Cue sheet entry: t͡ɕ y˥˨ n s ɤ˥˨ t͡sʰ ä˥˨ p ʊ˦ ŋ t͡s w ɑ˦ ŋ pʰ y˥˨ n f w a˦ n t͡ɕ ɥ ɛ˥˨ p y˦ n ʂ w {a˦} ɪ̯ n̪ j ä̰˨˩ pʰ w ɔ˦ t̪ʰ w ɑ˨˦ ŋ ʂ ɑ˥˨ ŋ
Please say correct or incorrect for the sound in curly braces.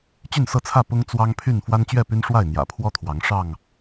incorrect